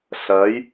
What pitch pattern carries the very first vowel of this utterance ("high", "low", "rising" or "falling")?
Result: rising